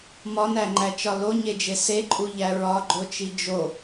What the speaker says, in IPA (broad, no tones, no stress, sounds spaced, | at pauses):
m ɒ n æ ŋ͡ǃ æ t͡ʃ ɒ l o ɲ e d͡ʒ e s e ǃʼ u ʎ æ ɹ ɒ ɡ͡ǃ o t͡ʃ i d͡ʒ o